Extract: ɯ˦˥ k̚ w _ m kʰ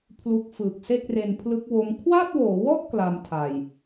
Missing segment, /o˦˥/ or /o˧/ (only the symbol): o˦˥